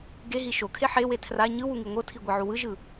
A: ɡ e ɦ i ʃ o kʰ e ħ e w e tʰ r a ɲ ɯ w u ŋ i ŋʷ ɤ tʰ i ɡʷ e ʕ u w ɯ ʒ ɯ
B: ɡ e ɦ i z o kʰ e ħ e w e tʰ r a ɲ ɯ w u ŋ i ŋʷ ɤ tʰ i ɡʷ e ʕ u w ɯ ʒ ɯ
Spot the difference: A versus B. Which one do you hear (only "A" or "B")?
A